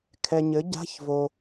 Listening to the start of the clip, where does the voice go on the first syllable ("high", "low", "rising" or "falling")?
low